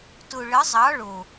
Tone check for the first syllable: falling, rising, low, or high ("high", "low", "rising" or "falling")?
low